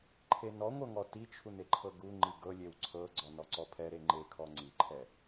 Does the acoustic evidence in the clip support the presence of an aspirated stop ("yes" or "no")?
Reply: yes